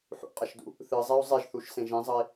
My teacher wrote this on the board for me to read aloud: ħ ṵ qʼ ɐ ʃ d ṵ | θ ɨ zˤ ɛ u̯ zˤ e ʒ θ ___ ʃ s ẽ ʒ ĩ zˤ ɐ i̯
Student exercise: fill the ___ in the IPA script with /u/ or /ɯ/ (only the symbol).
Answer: u